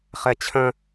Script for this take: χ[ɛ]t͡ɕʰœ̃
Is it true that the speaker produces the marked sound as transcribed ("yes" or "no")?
yes